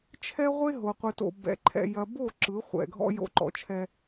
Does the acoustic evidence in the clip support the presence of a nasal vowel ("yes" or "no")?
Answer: no